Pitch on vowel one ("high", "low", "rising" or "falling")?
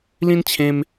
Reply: high